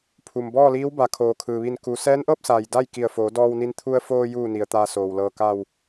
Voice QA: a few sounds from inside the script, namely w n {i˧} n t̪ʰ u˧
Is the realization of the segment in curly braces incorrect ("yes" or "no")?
no